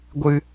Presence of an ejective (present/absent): absent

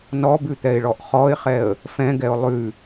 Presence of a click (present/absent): absent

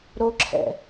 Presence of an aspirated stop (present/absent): present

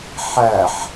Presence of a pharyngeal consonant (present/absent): present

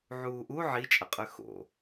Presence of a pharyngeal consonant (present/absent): present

